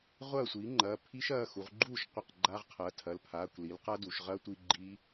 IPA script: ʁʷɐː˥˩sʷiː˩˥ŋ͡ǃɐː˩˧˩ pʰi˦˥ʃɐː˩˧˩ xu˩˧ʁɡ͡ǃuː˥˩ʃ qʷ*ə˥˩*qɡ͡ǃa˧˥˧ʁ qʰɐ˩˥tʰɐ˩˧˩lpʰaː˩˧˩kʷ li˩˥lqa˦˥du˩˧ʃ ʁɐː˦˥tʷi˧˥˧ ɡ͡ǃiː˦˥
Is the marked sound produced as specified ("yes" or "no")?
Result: yes